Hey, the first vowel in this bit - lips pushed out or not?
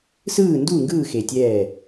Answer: no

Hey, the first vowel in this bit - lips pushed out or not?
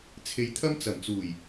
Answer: no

